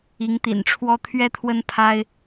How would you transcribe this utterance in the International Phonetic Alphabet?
i˧˥ ŋ t̪ ḭ˨˩ n ʈ͡ʂʰ w ɔ˥ t̪ʰ ɥ ɛ˥ t̪ʰ w ə˥ n pʰ a˥ ɪ̯

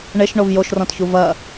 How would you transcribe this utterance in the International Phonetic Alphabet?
ɳ e ʃ ɳ o v j o ʃ r ɔ̃ t ç u v ɐ

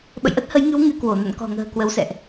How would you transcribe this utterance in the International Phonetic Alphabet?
ɓ ə̰˧˨ j ʔ ə˦˥ t̚ h ə˨˦ j ŋ ɨ˨˦ w ŋ ɨ˧ k w o˧˩ n ə̰˧˨ n k ɔ̤˨˩ ŋ ə̤ː˨˩ k w ə˨˦ w s ɛ̰˧˨ ʔ

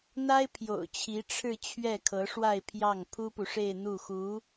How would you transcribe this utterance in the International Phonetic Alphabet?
n̪ a˥ ɪ̯ pʰ j o̰˨˩ ʊ̯ t͡ɕʰ i˧˥ ʈ͡ʂʰ ɻ̩˥˧ t͡ɕʰ ɥ ɛ˥˩ kʰ ɤ˧˥ ʂ w a˥˧ ɪ̯ pʰ j ɑ˥˩ ŋ pʰ u˥ p u˨ ʂ e˥˧ ɪ̯ n̪ u˥˩ x u˧˥

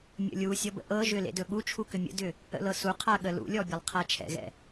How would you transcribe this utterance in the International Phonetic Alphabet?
mʲ ə̰ lʲ u sʲ ɔ b ə̰ ʔ ɤ ʒ ʏ l ḛ d ɵ ɠ u t͡ʃʰ u k ʏ mʲ ə̰ d ʏ | ə̰ l ɤ s u qʰ a ɠ ə l ṵ lʲ ɔ bʲ ɛ lˠ qʰ a t͡ʃʰ ɛ̰ ɣ ɛ̰

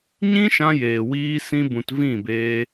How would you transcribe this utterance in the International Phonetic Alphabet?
ɲ ĩ˦ ʃ ã˧ j eː˨ w iː˧ s ĩ˧ b ũ˨ t v ĩ˦˨ b eː˧

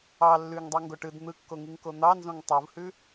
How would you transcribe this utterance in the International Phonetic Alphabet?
ɑ lː ʉ ŋ dˤ o ŋ ɡ o ʈ ɯ d n̪ ɯ kː o ŋ i ŋ k o n̪ ɑ n z õ ŋ tˤ u v h ʉ

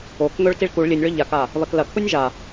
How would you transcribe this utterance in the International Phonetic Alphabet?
o k ŋ ɵ ɭ t i ɭ k u ɭ lʲ ɨ nʲ ɭ ɵ ʎ a k a | β ɐ k l ɐ kʰ u nʲ ʒ a

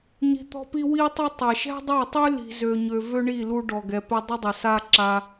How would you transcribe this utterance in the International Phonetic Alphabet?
ɲ i̤˧ t̪ ɔ̤˦ p i˦ w i˦ tˤ ʊ˦ tˤ ɐ˨ ʃ ɛ̤˦ dˤ a˦˨ tˤ y˦ l i̤˧ z ø˧ ɲ ø˧ v ø˦ ɳ i˦˨ l u˧ ɖ ɔ˨ ɡ ɛ˨ p ɪ˧ dˤ ɪ˦ dˤ ɪ˨ s a˦ ǁ a˧

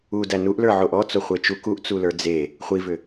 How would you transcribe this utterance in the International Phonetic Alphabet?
u d æ n u ʔ l ə˞ ʕ o ʔ ɔ t͡s o χʷ e t͡ʃ u k u ʔ t͡s u l ə˞ d͡z e | χʷ i v ʏ

